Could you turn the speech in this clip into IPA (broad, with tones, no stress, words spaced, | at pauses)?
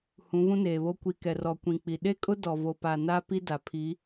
hũ˨˦vũ˦neː˨βo˦ kʷi˨kɛ˨rɔ˨ kʷĩ˨k͡pi˨ ɗe˦kʼʊ˦ dɔ˨ vo˨pa˨na˦ pi˦da˨ pʰi˨˦